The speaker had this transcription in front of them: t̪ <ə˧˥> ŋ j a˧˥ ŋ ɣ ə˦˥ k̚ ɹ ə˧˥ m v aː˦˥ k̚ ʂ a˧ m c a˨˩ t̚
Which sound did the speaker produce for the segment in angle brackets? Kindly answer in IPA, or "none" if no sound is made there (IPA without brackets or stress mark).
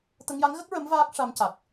ə˧